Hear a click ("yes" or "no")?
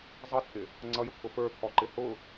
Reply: yes